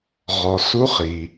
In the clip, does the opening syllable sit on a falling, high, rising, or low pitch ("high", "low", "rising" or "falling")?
low